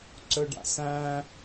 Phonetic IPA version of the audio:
ǀɵɖa̰sæ̃

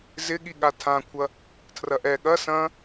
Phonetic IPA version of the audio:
zɪ ɠiɠatʰãkʷʰɐ | tʰrɐʔɛ ɠɐ sɐ̃

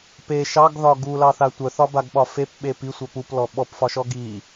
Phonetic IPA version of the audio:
pe ʃɑɡðɒ ɡulɑθa tʷœθɒbaɡɓɒ fepɓep isʷœ puplɔ ɓɔpfɒʃɔ ɡi

